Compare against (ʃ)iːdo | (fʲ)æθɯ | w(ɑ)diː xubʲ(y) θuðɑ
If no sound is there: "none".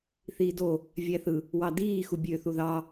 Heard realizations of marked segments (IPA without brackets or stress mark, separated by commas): θ, vʲ, ɑ, ø